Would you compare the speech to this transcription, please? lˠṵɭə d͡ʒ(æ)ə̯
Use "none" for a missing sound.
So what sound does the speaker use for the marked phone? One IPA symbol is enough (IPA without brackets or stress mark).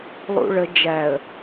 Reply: æ